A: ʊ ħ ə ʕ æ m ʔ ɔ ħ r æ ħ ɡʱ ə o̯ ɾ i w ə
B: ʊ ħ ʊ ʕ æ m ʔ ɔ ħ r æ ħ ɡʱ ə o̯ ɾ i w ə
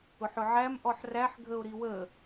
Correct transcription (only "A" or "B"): B